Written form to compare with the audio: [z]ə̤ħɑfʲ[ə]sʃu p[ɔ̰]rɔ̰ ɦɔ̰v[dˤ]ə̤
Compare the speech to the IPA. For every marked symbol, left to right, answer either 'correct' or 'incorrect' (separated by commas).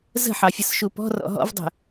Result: correct, correct, incorrect, correct